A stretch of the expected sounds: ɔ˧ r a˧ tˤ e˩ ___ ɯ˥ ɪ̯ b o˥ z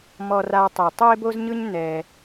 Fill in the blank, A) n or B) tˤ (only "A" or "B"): B